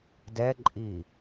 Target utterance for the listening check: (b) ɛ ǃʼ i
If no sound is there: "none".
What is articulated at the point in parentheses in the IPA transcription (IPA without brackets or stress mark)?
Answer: d